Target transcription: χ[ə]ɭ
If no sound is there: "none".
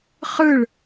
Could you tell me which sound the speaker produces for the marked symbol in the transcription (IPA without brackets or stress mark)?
ɯ